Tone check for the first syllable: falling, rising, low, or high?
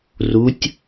rising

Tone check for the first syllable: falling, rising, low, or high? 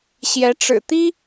rising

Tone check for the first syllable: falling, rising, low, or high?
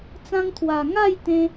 high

